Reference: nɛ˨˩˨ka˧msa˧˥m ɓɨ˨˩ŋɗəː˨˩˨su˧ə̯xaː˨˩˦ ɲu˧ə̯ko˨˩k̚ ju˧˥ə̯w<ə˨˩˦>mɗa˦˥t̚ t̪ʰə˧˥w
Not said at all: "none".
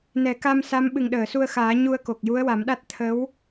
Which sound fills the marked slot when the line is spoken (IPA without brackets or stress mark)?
a˨˩˦